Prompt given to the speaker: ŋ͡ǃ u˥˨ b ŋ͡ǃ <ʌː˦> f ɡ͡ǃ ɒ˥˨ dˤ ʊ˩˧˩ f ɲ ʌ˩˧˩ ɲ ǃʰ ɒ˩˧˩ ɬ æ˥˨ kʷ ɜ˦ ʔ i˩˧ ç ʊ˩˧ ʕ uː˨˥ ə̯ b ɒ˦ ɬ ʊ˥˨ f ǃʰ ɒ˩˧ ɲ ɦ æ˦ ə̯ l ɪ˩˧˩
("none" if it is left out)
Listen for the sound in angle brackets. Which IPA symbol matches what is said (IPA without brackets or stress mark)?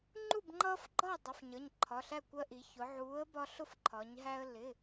ʌː˦